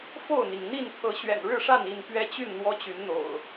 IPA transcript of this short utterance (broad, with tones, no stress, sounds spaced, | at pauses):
f o˥˨ ʊ̯ n̪ i˩ ŋ n̪ i˥˨ n t̪ʰ ɤ˨˦ ɕ ɥ ɛ̰˨˩ n ɻ ɻ̩˥˨ ʂ a˥˨ n i˥˨ n p ɥ ɛ˦ t͡ɕ y˥˨ n n̪ w ɔ˦ t͡ɕ y˨˦ n n̪ o̰˨˩ ʊ̯